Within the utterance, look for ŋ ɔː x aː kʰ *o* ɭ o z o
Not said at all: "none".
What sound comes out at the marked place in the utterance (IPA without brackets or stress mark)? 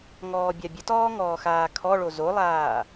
ɔ